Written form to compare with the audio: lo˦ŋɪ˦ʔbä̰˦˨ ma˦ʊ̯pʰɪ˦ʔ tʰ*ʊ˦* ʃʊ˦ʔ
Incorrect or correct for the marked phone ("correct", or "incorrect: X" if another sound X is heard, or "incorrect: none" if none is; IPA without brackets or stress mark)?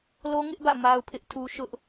incorrect: u˦